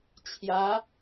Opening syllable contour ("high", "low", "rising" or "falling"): rising